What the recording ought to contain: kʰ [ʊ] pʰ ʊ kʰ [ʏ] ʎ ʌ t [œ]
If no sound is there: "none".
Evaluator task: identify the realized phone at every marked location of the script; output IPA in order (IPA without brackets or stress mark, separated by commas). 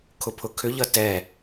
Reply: ʊ, ʏ, ɛ